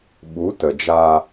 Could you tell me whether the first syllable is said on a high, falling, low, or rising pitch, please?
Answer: rising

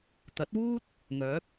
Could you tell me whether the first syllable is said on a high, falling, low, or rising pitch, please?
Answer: rising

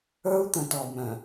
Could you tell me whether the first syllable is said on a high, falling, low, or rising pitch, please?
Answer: high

